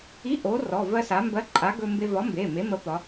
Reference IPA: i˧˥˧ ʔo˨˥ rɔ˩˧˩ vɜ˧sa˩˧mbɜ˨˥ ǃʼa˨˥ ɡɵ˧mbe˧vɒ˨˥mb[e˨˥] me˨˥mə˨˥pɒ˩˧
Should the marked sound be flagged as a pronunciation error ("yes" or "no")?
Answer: yes